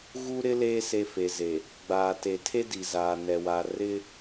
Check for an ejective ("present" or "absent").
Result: absent